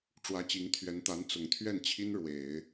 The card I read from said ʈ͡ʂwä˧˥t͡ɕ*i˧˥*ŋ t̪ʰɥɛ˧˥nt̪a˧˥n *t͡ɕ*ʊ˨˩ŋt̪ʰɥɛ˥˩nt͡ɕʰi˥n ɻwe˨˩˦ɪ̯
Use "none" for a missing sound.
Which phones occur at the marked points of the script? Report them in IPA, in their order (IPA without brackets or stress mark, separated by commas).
i˧˥, t͡s